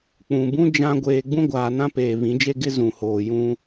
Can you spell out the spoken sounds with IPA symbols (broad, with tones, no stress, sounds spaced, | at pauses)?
k͡p ũ˨ b ũ˦ d͡ʒ ã˦ ɡʷ eː˨ ɡ͡b ũ˦ ɡʷ aː˨ n ã˦ p eː˨ β ĩ˨˦ d͡ʒ e˦ ɡ ɪ˦ z ũ˨ h oː˨ j ũ˦